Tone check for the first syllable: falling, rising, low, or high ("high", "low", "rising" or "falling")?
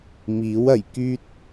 rising